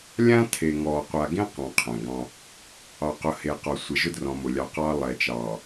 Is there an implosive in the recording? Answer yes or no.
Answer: no